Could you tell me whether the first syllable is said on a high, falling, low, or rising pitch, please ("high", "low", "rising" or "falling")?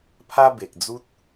high